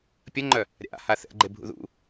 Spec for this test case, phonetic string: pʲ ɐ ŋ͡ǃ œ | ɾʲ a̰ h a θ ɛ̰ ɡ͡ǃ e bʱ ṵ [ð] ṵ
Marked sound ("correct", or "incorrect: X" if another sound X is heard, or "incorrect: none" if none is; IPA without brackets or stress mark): correct